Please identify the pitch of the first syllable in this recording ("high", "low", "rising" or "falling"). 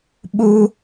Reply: high